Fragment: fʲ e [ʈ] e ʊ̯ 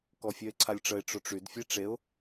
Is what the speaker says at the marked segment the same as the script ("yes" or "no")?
no